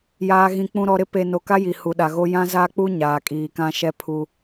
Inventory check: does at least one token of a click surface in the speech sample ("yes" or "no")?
no